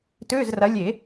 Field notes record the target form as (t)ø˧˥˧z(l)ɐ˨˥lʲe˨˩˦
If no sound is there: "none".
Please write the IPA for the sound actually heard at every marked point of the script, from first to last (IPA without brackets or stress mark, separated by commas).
t, r